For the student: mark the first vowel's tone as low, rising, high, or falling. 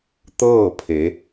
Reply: falling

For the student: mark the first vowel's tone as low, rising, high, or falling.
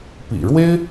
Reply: low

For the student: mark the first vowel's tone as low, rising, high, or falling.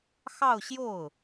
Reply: falling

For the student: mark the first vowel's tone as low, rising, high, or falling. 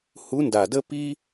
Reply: rising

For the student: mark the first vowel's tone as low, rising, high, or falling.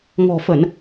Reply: low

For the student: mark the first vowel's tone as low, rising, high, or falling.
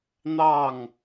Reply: falling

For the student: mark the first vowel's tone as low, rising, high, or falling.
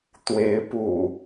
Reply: rising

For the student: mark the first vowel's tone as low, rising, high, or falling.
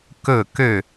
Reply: falling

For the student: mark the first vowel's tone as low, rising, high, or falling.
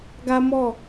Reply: high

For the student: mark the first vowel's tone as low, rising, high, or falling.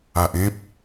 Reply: low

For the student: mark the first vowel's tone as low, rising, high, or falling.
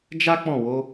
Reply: high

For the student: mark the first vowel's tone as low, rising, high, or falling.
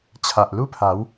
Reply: low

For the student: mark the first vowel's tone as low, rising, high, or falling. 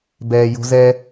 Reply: high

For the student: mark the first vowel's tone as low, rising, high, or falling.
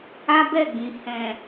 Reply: high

